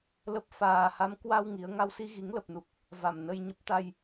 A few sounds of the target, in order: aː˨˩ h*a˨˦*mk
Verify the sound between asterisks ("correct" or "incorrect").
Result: correct